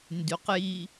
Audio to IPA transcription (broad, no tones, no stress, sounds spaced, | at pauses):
n d y q j i